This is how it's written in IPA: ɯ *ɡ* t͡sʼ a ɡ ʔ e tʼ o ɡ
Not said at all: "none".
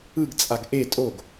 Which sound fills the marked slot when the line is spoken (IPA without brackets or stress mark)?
ɡ